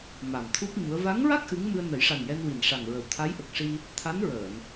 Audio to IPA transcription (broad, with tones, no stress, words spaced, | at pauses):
ma˨˩mt̪ʰu˦˥p̚ ɲu˧˥ə̯ va˧˥ŋɹa˦˥k̚ ʔɨ˧˥ŋ mɨ˧ə̯nə˨˩˦jʂa˨˩njɛ˧n wi˨˩nʂa˨˩ŋɹə˨˩w t̪ʰa˧˥jʔə˨˩k̚ʂi˧ | t̪ʰa˧˥nɹəː˨˩˨n